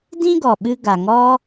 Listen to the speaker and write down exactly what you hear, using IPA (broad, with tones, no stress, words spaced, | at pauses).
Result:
dĩ˦ɡɔ˨ɓɨ˧ ɡa˨ŋɔ˦